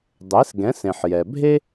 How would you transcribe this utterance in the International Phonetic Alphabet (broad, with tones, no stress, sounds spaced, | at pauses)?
dˤ e˩˥ s ɡ ɛ̃˩˥ s ẽ˩ ħ j ɛ˩ bʱ e˥